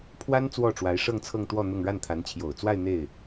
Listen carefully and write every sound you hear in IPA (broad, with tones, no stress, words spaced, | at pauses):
pʰwa˥n t͡swɔ˥˩ʈ͡ʂwa˧˥ɪ̯ ʂɤ˥˧ŋt͡sʰɤ˥˧ŋ t̪wɔ˥˧ n̪ʊ˥˧ŋ ɻa˥˩nt̪ʰa˧˥nt͡ɕʰjo˨˩ʊ̯t͡swa˥˧ɪ̯ n̪e˥˩ɪ̯